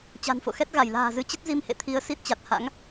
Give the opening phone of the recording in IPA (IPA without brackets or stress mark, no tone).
t͡ɕ